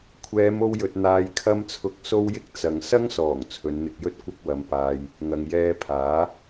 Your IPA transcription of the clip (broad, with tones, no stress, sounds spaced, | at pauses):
kʷʰ ɛː˨˧ m o˧ w j ɵ˨ t̚ n̪ aː˨ j kʰ ɐ˧ m t͡sʰ ʊ˨˥ k̚ s o˧ w j ɪ˧ k̚ t͡s ɐ˨ ŋ s ɐ˥ ŋ s ɔː˨˩ ŋ t͡sʰ ɵ˨˧ n n̪ ɪ˧ k̚ j ɵ˥ t̚ kʷ ɐ˧ k̚ w ɐ˨ m p aː˨ j | ŋ ɐ˨ ŋ j ɛː˧ pʰ aː˨˥